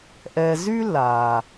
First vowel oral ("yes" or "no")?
yes